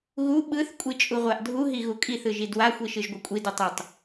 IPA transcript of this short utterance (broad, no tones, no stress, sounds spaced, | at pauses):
ɣ u ɓ ɯ θ kʷʼ i t͡ʃʼ u ʁʷ a ʔ dʱ u ɦ i ɣ u kʼ i θ ɯ ʒ i d w a xʷ i ʃ ɯ ʒ ɡʷ ɯ kʷʼ i d u tˤ u tˤ